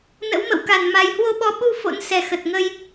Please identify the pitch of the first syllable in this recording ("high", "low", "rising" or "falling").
rising